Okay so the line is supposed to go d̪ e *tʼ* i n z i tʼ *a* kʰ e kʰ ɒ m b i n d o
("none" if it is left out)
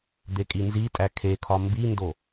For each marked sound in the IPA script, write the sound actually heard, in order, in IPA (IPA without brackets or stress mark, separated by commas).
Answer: kʼ, æ